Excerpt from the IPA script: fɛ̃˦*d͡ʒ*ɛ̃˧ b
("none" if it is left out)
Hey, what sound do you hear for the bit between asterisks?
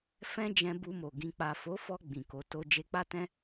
d͡ʒ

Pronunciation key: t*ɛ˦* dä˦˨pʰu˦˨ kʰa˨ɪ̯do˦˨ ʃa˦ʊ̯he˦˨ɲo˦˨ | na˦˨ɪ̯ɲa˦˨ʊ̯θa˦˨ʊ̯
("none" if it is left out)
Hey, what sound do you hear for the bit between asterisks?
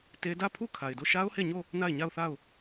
e˦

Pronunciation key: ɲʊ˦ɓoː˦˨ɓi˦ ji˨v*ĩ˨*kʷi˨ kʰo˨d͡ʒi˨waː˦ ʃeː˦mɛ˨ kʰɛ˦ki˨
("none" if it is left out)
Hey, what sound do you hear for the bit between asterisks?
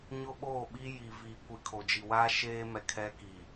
i˨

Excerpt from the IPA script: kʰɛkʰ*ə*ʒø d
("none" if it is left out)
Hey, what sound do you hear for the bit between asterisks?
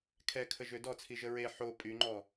ə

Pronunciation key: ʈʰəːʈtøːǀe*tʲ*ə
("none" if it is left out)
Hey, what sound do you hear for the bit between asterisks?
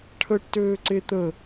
t̪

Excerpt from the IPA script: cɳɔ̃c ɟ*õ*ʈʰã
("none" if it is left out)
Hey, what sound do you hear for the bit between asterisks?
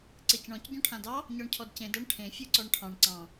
ɔ̃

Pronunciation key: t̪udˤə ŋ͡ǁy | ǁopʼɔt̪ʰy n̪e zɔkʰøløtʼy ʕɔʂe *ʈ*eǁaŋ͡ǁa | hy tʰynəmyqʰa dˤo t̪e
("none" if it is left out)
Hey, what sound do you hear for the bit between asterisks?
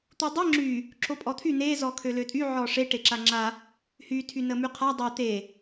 ʈ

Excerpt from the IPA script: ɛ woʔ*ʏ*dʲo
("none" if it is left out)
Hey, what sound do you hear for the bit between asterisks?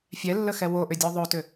ʏ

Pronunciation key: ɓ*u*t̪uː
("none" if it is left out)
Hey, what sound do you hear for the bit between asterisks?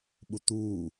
u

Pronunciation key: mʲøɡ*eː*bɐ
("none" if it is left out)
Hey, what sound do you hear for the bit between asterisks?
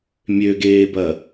eː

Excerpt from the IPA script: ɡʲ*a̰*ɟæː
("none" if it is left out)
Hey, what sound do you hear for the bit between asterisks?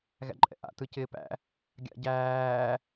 a̰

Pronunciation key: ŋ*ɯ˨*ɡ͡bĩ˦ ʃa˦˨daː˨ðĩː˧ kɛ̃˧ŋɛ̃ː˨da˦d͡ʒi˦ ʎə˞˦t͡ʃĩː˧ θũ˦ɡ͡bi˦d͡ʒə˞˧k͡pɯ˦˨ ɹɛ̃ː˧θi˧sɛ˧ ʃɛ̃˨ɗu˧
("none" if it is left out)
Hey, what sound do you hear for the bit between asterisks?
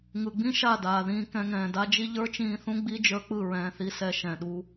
ɯ˨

